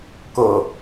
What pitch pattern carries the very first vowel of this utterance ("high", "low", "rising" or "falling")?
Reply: low